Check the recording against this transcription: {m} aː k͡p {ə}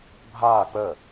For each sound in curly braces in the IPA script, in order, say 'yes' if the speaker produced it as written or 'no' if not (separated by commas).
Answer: no, yes